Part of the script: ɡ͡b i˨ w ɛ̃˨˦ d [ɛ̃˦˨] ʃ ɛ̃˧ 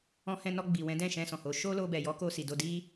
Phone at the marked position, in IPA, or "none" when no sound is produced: ɛ̃˦˨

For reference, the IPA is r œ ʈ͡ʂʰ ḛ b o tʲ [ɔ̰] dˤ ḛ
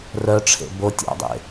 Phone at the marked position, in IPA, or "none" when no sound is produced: ɔ̰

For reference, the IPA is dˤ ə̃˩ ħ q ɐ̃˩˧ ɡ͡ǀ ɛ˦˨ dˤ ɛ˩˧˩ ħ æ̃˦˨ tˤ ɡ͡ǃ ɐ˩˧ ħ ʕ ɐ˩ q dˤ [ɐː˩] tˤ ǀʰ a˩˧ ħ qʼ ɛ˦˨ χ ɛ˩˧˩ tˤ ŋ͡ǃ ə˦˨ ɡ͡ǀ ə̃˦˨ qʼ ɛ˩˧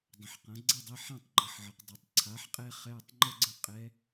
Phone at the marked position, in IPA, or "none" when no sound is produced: ɐ˩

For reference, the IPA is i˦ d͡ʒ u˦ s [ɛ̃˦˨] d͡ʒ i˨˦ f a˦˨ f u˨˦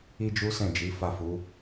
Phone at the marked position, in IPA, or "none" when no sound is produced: ɛ̃˦˨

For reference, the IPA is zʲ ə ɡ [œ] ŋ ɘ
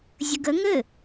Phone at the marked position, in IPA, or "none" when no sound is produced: ə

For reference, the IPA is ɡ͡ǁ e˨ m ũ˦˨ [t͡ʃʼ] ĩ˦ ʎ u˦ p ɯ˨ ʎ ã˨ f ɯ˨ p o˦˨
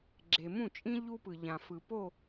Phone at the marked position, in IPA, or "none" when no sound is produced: t͡ʃʼ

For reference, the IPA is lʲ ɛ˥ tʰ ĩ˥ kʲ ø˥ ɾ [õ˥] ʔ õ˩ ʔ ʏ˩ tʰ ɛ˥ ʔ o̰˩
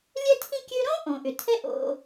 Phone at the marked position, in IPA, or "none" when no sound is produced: õ˥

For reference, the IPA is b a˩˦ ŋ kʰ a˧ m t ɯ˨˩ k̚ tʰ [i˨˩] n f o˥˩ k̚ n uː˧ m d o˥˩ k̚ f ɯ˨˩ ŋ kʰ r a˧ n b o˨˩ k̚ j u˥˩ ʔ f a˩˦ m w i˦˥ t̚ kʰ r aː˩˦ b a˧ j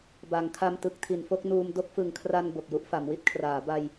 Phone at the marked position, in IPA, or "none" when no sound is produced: i˨˩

